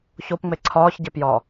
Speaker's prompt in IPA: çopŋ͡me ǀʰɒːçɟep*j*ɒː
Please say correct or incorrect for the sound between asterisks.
correct